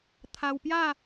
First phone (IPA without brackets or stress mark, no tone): t̪ʰ